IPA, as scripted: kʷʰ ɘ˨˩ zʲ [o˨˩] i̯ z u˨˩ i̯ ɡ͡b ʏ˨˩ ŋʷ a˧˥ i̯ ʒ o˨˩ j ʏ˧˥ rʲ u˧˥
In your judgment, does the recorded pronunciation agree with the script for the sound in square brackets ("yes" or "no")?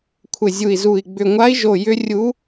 no